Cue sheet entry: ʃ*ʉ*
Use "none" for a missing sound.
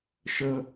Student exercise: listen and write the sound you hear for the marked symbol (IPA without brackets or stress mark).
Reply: ə